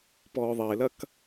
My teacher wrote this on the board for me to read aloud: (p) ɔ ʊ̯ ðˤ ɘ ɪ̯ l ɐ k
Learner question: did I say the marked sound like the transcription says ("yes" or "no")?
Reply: yes